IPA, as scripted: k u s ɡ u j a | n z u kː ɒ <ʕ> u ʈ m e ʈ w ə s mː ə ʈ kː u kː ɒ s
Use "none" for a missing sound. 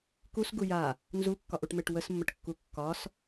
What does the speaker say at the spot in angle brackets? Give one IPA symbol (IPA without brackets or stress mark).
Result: ʔ